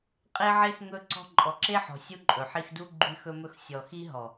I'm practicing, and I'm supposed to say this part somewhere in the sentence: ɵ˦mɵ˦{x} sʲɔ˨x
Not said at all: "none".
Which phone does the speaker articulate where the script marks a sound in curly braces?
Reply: x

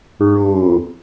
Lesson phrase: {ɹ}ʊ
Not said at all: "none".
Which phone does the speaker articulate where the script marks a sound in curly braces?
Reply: ɹ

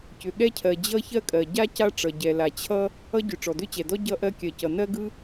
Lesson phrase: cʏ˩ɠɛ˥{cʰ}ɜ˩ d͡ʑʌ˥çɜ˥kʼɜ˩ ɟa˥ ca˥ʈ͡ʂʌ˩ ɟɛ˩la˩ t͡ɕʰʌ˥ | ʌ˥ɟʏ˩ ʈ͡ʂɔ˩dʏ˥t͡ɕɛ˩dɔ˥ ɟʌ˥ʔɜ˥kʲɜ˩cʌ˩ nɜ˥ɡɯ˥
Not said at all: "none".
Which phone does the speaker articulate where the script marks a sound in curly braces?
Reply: cʰ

